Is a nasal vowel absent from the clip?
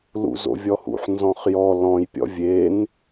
no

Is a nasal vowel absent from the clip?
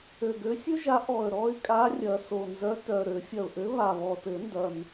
yes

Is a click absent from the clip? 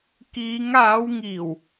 yes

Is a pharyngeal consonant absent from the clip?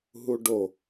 yes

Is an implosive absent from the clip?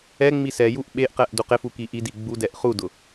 no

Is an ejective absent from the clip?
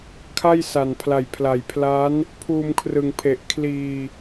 yes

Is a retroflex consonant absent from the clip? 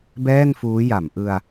yes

